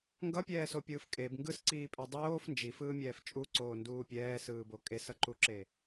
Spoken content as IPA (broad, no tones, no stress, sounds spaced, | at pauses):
ŋ ɡ ʌ pʲ ɛː s o pʲ ɯː f kʼ e b ŋ ɡ ɯ s ǀ iː pʼ e dˤ oː f n d͡ʒ i f ɯː mʲ ɛː f t͡ʃʼ u ǀ oː n d uː pʲ ɛː s ɯː b o kʼ e s ʌ ǃ u ǁ e